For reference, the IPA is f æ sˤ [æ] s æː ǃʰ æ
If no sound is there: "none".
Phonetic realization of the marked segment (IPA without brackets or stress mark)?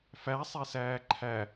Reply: ɛ